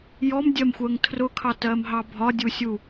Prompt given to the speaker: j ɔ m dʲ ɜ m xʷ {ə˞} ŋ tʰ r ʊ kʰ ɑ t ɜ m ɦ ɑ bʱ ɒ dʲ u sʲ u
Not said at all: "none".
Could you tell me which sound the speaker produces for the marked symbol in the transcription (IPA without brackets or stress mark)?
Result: ɜ